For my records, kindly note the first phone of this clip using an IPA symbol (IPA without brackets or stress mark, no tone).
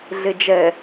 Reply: ɮ